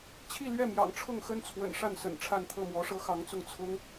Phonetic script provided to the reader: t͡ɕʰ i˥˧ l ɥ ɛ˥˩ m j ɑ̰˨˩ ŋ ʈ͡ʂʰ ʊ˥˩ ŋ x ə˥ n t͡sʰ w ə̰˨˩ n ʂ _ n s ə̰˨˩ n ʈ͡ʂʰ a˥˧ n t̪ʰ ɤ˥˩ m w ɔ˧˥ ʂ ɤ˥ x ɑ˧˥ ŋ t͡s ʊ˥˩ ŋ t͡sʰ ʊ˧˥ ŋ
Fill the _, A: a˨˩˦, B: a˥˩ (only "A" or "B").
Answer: B